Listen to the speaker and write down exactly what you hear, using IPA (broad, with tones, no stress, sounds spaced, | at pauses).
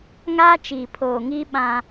ŋ aː˦ t͡ʃ iː˨ pʰ oː˨ ŋ iː˦ ɓ ã˦